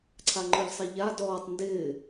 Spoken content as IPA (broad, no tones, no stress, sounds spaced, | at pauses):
ǀʰ a ŋ͡ǃ ʊ ʎ sˤ e ʎ a d ɔː tˤ n d ɪː